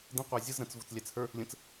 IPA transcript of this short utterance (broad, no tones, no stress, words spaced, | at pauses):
də̃ qʷæzʲəz ɾə̃t͡s vʊt͡slʲæt͡shə˞ | lʲə̃t͡s